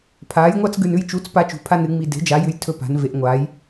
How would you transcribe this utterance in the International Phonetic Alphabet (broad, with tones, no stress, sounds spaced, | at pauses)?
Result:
pʰ aː˩˥ j ŋʷ a˦ t͡s ɡ ʉ˨ n ʉ˦ j t͡ʃ u˩˥ t͡s p a˦ t͡ʃ ṳ˩˥ pʰ a˦ n ɨ˩˥ ŋ͡m i˨ d e̤˩˥ d͡ʒ a˩˥ j ʉ˨ j tʰ ɵ˦ p a̤˩˥ n v e˩˥ ʔ ŋʷ aː˩˥ j